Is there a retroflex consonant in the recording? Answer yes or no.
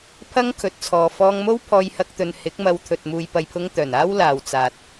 no